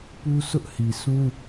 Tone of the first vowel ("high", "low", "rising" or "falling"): high